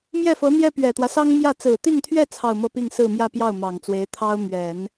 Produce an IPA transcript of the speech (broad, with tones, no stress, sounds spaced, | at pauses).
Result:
m j ɛ˥˩ f ɤ˧˥ n̪ j ɛ˥ p ɥ ɛ˨˩ t̪ w ä˦ s ɑ˥ ŋ m j ä˥˩ t͡s ɹ̩˨˩ t̪ i˥˧ ŋ t̪ʰ ɥ ɛ˥˧ t͡sʰ ɑ˥˧ ʊ̯ m ɤ˥˧ p i˥˧ ŋ s ɹ̩˥˧ m j ä˥˧ p j ɑ˥˩ ʊ̯ m ɑ˨˩ ŋ t͡s w e˧˥ ɪ̯ t̪ʰ ɑ˥ ʊ̯ m ɥ ɛ˨˩˦ n